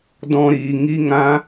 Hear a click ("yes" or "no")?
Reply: no